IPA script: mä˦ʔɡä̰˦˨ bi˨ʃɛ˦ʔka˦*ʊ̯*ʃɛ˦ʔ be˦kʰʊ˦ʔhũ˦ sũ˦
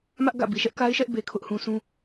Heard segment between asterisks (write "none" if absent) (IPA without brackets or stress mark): ɪ̯